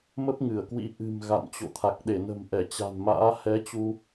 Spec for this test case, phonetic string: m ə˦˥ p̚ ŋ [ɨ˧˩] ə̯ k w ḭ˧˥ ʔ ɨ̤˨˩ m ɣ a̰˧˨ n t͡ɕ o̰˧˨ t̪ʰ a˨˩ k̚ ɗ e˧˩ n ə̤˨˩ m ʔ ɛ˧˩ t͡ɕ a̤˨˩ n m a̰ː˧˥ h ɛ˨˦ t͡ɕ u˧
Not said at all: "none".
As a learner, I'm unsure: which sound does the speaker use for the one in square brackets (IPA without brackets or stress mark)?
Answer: ɨ˧˩